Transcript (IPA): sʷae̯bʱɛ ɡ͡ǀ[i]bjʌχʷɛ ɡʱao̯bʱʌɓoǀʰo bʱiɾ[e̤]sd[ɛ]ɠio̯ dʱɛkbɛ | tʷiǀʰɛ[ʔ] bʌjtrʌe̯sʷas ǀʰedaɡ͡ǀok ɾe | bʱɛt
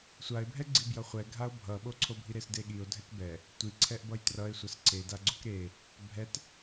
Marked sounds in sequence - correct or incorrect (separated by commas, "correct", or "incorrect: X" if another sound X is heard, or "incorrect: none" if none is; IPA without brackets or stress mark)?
correct, incorrect: e, incorrect: e, correct